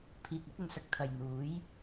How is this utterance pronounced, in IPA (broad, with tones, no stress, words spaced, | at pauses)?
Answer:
pʰiː˨k̚ɐ˥t̚ɵ˨nsɐ˨k̚ t̪ʰɐ˨jn̪uː˨˥j